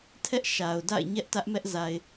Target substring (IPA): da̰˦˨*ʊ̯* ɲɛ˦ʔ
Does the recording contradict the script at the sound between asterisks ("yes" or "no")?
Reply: yes